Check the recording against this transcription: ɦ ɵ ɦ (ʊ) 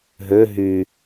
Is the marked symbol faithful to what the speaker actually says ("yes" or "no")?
no